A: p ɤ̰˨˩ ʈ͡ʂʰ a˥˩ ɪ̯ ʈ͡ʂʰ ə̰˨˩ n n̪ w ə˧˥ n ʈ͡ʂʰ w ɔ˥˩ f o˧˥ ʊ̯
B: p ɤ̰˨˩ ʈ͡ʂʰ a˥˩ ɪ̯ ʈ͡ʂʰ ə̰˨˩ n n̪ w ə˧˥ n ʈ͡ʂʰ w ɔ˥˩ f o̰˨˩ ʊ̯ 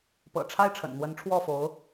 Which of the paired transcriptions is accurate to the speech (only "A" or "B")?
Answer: A